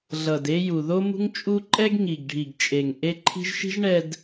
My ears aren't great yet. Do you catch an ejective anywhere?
yes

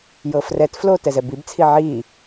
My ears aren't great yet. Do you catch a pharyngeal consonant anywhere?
yes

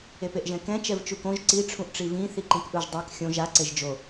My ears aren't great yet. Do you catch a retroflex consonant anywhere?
yes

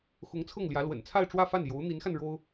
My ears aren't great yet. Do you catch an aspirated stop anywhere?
yes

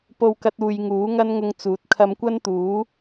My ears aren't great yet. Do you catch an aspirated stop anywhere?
yes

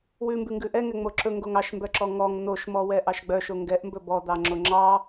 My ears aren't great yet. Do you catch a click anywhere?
yes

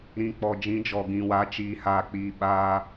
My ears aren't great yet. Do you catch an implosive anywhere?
yes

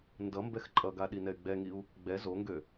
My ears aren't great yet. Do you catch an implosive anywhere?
yes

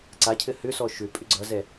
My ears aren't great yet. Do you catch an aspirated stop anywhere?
yes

